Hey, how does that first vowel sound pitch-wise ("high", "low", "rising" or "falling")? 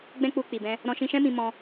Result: high